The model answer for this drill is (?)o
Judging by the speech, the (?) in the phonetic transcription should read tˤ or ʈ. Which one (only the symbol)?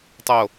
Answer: tˤ